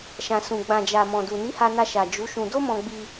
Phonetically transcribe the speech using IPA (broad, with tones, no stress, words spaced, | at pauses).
ʃã˨sũ˨ ɡ͡bã˨d͡ʒa˨ mɔ̃˨du˨ni˨˦ ha˧na˧ʃa˨ d͡ʒu˨˦ʃũ˧ do˦mɔ̃˧ɡ͡bi˧